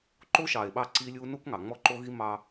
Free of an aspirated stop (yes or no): yes